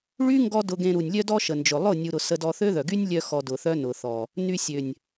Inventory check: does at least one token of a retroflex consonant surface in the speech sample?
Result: yes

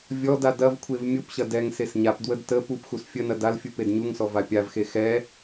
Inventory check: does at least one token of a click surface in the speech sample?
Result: no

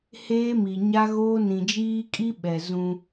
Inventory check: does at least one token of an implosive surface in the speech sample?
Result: yes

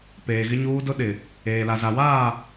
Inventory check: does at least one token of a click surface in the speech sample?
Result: no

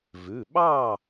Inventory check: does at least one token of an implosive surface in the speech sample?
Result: yes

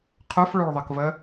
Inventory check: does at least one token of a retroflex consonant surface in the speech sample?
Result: yes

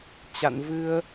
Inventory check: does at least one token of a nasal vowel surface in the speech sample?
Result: no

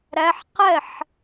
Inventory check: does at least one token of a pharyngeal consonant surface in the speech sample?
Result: yes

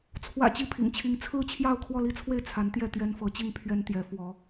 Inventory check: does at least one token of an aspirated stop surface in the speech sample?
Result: yes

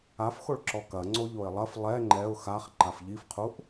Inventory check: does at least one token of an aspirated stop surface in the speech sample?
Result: yes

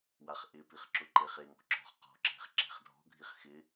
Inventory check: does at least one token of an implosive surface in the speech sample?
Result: no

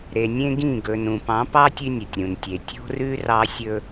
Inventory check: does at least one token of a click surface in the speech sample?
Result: no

